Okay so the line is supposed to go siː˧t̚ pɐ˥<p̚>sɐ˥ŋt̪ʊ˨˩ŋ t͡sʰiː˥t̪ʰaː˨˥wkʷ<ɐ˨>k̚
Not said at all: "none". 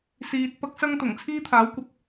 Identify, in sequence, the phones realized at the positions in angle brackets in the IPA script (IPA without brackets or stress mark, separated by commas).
k̚, ɐ˨